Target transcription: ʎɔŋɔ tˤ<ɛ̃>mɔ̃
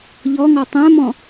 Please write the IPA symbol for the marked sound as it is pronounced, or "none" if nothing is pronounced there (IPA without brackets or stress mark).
ɛ̃